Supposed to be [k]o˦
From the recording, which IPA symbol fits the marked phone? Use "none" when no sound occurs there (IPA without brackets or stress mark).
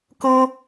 k